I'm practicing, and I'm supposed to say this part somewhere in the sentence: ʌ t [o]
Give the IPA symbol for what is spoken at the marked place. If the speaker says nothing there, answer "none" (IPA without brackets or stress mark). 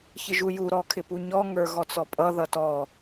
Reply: ɔ